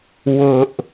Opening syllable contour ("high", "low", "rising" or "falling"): low